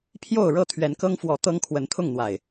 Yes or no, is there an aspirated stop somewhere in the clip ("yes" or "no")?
yes